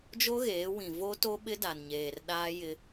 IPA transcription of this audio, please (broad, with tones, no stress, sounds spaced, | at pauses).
d͡ʒ o˦ ɣ eː˨˦ w ĩ˨ v o˦ t o˦ ɓ ɪ˦ d a˨ n ɲ eː˨ r ɗ aː˦ j ɪ˦